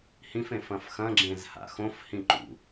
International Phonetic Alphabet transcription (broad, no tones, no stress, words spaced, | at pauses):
hĩfẽfɐ̃f xɐ̃ɡ͡ǁẽzha̰ xõfhĩǃṵ